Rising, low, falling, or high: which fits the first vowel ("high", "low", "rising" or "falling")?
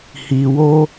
low